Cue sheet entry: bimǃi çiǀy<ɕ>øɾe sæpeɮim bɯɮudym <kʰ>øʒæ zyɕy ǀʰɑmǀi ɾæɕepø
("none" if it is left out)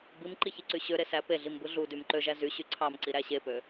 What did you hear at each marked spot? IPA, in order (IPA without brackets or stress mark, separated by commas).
ɕ, ǃ